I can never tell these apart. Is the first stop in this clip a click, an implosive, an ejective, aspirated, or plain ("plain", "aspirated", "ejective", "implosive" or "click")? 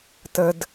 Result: plain